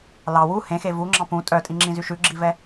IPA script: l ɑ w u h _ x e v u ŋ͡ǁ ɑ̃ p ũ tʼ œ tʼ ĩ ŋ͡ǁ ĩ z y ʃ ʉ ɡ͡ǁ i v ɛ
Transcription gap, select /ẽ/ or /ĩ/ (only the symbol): ẽ